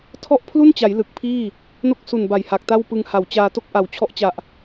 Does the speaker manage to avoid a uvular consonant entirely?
yes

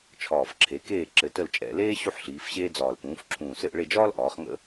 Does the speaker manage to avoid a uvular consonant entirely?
no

